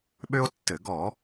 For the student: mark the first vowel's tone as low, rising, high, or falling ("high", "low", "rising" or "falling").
high